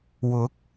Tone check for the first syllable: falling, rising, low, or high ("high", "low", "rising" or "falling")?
rising